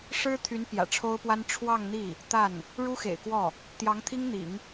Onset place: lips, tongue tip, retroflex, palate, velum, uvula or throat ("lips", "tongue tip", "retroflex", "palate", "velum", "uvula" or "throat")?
retroflex